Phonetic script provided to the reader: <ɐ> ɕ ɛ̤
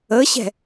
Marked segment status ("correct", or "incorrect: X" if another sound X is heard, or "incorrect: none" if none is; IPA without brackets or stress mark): incorrect: ə